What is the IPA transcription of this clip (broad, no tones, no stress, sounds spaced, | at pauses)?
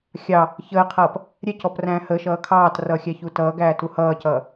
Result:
xʲ ɑ | ç əː qʰ ʌː p | ɾʲ ɛ c ɔ p r æ̃ː h ə ʃ ʌː kʰ ɑː t r ʌː xʲ æ ç u t ʌː ɡ æː t u h ʌː c ʌː